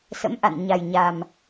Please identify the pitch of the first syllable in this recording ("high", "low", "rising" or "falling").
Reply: rising